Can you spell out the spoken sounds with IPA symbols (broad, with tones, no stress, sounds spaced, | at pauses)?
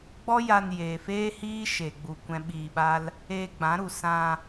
ɡ͡b ɔ˦ j a˧ n j eː˨ f eː˦ h iː˦ ʃ e˧ ɡ͡b u˧ kʷ ɛ̃˦ ɓ iː˧ ɓ a˦ l | eː˧ ɡ͡b ã˨˦ ɾ u˨ s ã˧